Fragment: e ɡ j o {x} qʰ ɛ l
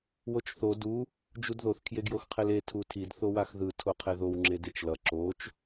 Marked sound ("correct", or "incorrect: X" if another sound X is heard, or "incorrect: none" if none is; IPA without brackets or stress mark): correct